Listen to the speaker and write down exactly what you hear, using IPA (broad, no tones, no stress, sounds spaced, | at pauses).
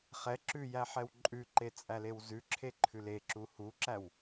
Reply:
χ ɛ ǁ ʉ j æ ħ ɛ w ǃʼ ʉ ǃ e t͡sʼ æ l e w z ʉ ǁʰ e ǃʰ ʉ l e ǁ u h u ǁ æ w